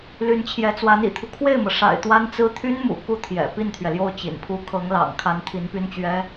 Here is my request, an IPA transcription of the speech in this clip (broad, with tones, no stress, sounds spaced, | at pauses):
l y˧˥ n t͡ɕʰ j ɛ˧˥ t͡s w a˧˥ n ḭ˨˩ t̪ʰ u˦ kʰ w e˥˩ ɪ̯ m ɤ˩ ʂ a̰˨˩ ɪ̯ t̪ w a˥ n t͡s ɹ̩˥ t̪ʰ y˥ n m ṵ˨˩ k u˥ t̪ʰ j ɛ̰˨˩ p i˥˩ n t̪ʰ ɥ ɛ˩ l j o˥˩ ʊ̯ t͡ɕ ḭ˨˩ n pʰ u˥ kʰ ɤ˧˥ ŋ l ɑ̰˨˩ ŋ kʰ a˧˥ n t̪ʰ i˧˥ n p y˥ n t͡ɕ ɥ ɛ˥